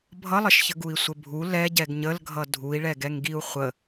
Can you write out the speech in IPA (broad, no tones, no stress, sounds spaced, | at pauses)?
bʱ ʌ lˠ ə ʃ ç ə ɡ u i̯ sʷ ə bʱ u l ɛ ɟ ɛ ɡ ɲ ə l ɡʱ ʌ dʱ u i̯ ɭ ɛ ɡ ɛ ŋ ɡ i u̯ χʷ ə